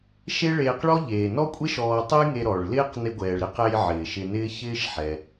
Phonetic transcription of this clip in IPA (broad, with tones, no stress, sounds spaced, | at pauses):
ʃ e˥ ɭ eː˧ q ɭ ɔ˥ ʎ eː˩ n ɔ˥ kʷʼ e˥ ʃ ɔː˧ tˤ ɘ˥ j ŋ e˧ ɾ ɔ˩ ɭ l ɪː˥ q n ɪ˧ ɡʷ ɛː˩ ɭ ɾ ɪ˥ q ɛ˧ j ʕ ɪː˩ ʃ ɪ˧ n ɪː˥ ç ɪː˥ ʃ ħ ɛ˩